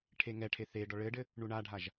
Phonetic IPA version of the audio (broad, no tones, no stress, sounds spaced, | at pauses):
ʈʰ e ŋ ɛ ʈʰ e θ e ɖ ɔ ɭ ɘ ɖ ɘ | ɳ u ɳ a ɖʱ a ʒ